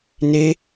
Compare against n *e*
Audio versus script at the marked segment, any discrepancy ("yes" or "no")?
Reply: no